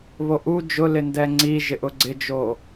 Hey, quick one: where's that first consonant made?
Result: lips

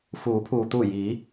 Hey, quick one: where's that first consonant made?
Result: lips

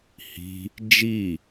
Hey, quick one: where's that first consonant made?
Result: throat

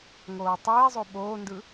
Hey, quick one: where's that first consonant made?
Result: velum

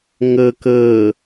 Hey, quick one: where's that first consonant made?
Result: velum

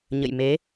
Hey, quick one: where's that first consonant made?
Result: palate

